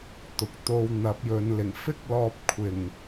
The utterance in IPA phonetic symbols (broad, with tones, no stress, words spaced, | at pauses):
t̪ʊ˨k̚t̪o˧w n̪ɐ˨˥p̚jɵ˨˧nlɪ˨˩ŋ fɪ˥k̚lɔː˧p̚kʷʰɪ˨˩ŋ